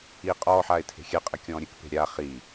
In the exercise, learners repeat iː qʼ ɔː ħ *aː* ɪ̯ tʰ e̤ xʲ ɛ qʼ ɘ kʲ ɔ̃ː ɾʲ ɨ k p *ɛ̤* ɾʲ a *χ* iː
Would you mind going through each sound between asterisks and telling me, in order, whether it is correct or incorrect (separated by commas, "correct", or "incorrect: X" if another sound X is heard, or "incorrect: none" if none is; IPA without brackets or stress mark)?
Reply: correct, incorrect: e̤, correct